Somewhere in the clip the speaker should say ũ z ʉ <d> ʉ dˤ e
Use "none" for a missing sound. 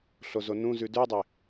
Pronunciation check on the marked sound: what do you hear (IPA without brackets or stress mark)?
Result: d